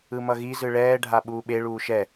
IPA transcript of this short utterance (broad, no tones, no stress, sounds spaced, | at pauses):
ɯ m ʌ ɣ i z ɯ ɭ ɛː ɖʱ a ɓ uː ɓ e ɭ uː ʃ ɛ